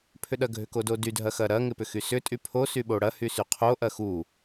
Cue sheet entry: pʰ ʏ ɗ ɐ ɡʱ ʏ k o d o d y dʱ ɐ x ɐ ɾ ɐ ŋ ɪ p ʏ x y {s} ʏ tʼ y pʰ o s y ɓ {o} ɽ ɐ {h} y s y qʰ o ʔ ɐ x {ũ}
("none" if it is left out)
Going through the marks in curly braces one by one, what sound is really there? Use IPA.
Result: s, o, h, u

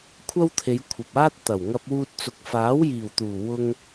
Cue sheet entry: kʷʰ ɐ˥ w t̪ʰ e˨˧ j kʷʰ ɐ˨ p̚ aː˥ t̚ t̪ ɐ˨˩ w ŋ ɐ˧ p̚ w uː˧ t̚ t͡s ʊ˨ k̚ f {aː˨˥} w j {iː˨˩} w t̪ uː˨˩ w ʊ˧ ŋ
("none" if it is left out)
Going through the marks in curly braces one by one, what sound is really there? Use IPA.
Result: aː˨˥, iː˨˩

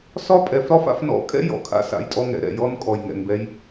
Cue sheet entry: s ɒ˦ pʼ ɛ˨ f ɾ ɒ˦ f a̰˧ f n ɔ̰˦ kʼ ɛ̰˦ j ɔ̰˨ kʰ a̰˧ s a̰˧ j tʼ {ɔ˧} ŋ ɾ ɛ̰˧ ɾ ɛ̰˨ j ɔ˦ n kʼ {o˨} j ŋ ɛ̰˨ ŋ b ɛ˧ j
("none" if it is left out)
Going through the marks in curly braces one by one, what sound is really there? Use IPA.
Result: ɔ˦, ɔ˨

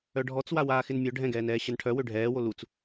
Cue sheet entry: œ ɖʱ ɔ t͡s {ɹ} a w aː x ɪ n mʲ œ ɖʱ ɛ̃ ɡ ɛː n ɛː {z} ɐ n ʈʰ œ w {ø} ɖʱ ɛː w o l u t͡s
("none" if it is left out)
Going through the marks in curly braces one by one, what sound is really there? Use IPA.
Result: w, ɕ, ø

